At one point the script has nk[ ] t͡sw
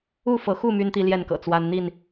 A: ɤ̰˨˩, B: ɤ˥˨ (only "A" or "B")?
A